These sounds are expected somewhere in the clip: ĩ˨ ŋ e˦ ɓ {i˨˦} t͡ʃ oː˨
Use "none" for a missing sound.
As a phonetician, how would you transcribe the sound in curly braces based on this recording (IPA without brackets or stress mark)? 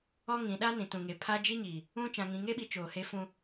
i˨˦